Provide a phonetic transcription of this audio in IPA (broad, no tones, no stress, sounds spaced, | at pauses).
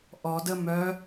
ʔ ɔ d ə m œ